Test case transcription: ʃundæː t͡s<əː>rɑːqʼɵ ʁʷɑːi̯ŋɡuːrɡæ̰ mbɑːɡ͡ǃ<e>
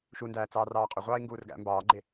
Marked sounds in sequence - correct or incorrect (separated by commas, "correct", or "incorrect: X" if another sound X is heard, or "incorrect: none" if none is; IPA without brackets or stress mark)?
incorrect: ɑː, correct